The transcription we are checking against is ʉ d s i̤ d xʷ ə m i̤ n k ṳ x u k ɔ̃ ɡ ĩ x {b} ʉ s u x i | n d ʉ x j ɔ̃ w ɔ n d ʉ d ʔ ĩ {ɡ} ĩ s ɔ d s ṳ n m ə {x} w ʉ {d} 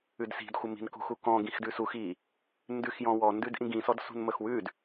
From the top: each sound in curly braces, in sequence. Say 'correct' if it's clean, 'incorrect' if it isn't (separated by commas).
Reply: incorrect, correct, correct, correct